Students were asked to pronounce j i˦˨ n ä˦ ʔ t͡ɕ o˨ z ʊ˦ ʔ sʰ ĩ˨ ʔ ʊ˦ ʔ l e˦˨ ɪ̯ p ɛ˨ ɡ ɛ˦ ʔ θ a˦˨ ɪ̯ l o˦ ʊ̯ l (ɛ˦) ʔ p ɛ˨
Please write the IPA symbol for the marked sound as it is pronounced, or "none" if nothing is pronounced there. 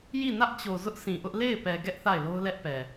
ɛ˦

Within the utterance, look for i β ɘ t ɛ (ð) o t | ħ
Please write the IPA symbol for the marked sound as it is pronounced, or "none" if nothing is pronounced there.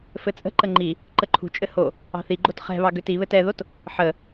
ð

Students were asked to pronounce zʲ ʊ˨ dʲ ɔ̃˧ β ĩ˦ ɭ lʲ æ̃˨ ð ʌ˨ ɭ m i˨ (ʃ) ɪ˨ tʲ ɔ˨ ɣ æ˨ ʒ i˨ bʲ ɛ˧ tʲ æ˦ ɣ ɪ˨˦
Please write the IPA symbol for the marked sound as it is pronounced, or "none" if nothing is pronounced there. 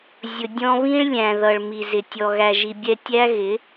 z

